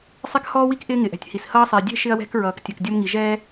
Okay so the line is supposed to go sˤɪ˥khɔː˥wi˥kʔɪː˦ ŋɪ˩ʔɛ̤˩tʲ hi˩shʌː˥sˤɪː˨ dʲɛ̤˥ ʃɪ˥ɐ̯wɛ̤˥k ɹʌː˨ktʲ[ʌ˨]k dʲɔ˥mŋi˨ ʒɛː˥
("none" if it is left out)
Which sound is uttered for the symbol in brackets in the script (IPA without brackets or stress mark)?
ʌ˨